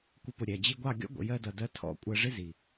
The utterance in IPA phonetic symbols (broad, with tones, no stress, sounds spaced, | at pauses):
kʷ ə˧ p ʊ˨ ɾʲ æ˨ d͡ʑ i˧ ɡʷ ɑ˦˨ ɡʲ ɔ̰˦ ɡʷ ə̰˨ j ɜ˧ d ʌ˨ d ɜ˧ tʰ ɔ̰˧ kʷʼ ɜ˧ ʐ ɪ˦ z i˨